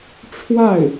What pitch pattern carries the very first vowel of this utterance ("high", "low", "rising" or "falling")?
falling